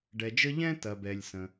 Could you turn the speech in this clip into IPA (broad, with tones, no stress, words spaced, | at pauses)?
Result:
ɖɛ˩d͡ʒə˥ ʎɛ̃˥tɐ˩bɛ˩lʲ sə̃˩